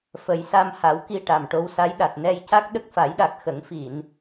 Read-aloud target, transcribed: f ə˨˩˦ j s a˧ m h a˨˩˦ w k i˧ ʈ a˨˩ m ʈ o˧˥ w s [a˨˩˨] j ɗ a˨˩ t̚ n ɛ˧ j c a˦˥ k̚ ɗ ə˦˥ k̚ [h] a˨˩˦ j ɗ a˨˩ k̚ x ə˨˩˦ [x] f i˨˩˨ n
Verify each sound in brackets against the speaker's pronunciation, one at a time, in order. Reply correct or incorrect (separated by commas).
incorrect, incorrect, incorrect